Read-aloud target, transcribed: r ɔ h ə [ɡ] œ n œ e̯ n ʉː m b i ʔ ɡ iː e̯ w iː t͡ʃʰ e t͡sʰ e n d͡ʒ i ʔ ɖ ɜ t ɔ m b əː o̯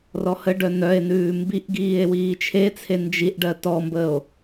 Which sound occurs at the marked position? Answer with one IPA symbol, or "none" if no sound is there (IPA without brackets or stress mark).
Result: ɖ